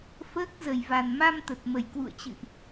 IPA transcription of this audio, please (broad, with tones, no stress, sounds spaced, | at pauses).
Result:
f əː˦˥ k̚ z ə˨˩ j v a˨˩ n m a˧ m t̪ ə˨˩ t̚ m ə˨˩ j k w ṵ˧˨ ə̯ t͡ɕ ɨ̰˧˨ ʔ